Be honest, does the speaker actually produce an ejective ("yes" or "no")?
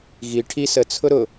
no